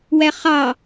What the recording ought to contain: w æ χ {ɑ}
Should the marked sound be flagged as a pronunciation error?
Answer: no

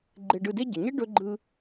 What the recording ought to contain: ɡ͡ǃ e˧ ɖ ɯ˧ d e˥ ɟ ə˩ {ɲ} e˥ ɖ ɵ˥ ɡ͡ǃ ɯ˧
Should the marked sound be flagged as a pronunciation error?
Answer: no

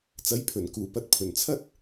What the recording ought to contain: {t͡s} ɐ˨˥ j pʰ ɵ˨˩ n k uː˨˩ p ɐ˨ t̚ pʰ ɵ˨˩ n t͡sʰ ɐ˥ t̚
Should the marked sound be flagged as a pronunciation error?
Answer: no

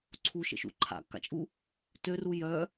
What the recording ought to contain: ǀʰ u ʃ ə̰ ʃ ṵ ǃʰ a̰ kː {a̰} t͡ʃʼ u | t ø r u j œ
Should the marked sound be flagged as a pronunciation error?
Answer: no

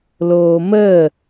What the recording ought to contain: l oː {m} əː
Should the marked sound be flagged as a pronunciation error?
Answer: no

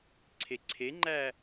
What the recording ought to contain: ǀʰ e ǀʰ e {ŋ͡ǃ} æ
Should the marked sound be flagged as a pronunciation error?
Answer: no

